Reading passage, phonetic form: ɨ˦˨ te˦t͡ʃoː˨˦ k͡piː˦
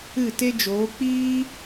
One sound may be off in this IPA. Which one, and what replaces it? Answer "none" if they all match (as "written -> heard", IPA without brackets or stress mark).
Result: t͡ʃ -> d͡ʒ